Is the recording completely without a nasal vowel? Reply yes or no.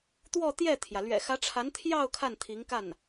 yes